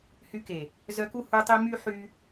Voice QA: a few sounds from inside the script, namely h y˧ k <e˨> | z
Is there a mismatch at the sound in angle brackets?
no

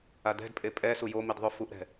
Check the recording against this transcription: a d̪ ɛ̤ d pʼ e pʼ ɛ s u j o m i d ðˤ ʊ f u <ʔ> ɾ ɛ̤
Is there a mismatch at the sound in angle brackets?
no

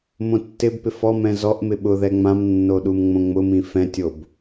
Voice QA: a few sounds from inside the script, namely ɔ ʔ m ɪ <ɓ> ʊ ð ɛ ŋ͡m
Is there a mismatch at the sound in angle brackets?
no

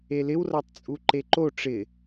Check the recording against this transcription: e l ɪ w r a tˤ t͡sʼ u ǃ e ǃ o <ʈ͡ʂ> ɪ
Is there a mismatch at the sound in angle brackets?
no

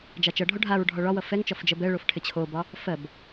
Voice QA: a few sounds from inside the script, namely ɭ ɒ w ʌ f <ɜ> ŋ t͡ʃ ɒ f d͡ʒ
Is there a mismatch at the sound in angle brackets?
yes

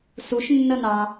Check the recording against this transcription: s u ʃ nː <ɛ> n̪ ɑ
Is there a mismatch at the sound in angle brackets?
yes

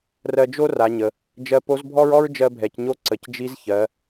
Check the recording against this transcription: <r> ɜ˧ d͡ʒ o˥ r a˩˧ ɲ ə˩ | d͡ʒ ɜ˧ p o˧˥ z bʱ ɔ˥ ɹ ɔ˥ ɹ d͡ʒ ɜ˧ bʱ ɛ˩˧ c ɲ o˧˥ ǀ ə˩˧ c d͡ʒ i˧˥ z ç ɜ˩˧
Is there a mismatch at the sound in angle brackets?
no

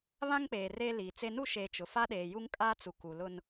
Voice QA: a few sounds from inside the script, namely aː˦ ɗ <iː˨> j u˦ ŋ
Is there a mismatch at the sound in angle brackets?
yes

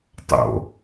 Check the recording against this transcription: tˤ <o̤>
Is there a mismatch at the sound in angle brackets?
yes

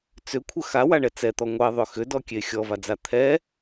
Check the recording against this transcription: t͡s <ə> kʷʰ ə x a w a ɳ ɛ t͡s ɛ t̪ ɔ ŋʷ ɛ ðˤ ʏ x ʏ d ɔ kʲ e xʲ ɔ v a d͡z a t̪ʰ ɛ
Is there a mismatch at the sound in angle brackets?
yes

